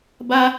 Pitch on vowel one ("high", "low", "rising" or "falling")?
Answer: high